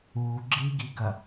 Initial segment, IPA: u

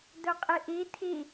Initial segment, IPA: d̪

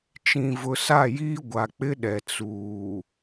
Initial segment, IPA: t͡ʃ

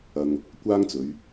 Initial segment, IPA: ɐ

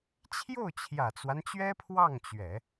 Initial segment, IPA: t͡ɕʰ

